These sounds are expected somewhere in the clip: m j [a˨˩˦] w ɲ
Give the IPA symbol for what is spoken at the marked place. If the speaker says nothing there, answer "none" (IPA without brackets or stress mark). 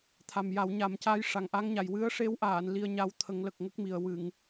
a˨˩˦